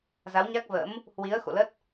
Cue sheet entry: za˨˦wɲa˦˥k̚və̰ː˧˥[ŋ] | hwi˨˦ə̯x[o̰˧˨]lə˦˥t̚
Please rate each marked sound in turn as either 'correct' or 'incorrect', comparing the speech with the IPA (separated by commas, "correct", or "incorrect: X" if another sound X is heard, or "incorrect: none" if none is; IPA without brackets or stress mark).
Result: incorrect: m, correct